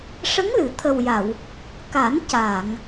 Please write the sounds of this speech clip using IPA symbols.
ʂ ə˧˥ ŋ l ɨ˨˩˨ t̪ʰ ə˨˩ w j a˨˩˨ w | k a˨˩˦ n c a˨˩˨ ŋ

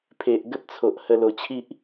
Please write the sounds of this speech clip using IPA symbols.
pʰ e˨ ʔ ɡ ə˦ p̚ t͡sʰ o˨ ʔ h ə˧ l o˨˩ t͡ɕʰ i˦ ʔ

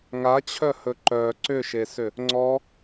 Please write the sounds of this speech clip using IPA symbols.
ŋ a t͡ɕʰ œ h ɵ ǃ œ ǀ ʏ ʃ e s ʏ | ŋ͡ǀ ɔ

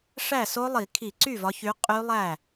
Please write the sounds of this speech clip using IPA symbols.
ʂ æ˥˩ s o˦˥ lˠ i˧˩˧ kʰ i˧˩˧ ǀ y˥˩ v ɒ˨˦ ç y˨˦ qʼ y˦˥ lˠ æ˥˩

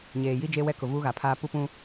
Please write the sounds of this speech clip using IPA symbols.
ɲ eː˨ j i˦ d͡ʒ e˦ w ɛ˦ k ʊ˨ v uː˦ ɣ a˨ pʰ aː˦ p u˦ p ũ˦

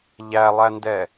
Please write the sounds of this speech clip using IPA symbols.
ʎ æ lˠ æ n d ɛ

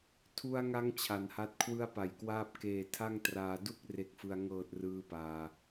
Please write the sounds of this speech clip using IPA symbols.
tʰ u˧ a̯ ŋ a˧ ŋ t͡ɕʰ a˩˦ n h a˦˥ t̚ kʰ w ɯ˧ a̯ p a˨˩ j k w aː˥˩ p̚ k eː˨˩ tʰ a˥˩ ŋ t r aː˧ d u˥˩ k̚ r e˦˥ k̚ f ɯ˧ a̯ ŋ ɤː˨˩ t̚ r ɯː˦˥ p aː˧

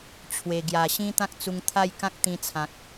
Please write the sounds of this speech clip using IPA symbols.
t͡ɕʰ w e˨˩ ɡ j a˨˩ ɕ ĩ˦ t̪ ã˦ k̚ t͡s u˧ ŋ t̪ʰ a˥˧ j k ã˦ k̚ t̪ ĩ˧ t͡sʰ ã˨ k̚

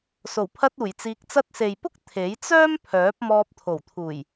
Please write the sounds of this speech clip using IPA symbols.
s o˨˩ w pʰ ɐ˧ t̚ uː˨˩ j t͡s iː˧ k̚ t͡s ɐ˥ t̚ s e˨ j p ʊ˥ k̚ t̪ʰ e˨˥ j t͡s œː˥ m pʰ œː˨˥ p̚ m ɔː˧ p̚ t̪ʰ o˨˩ w t̪ʰ uː˨˩ j

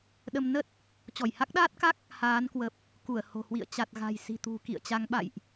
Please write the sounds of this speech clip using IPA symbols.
ɗ ə˧ m n ə˦˥ t̚ | t͡ɕ ɔ˧˩ j h a˦˥ k̚ ɗ aː˦˥ t̚ k a˦˥ k̚ | h aː˨˦ n k w ə˨˩ p̚ | k u˧˩ ə̯ h o̤˨˩ h w ḭ˧˨ ə̯ t͡ɕ a˨˩ t̚ ɣ a̤˨˩ j s i̤˨˩ t̪ ṳ˨˩ k ḭ˧˨ ə̯ t͡ɕ a˨˦ ŋ ɓ a̰˧˨ j ʔ

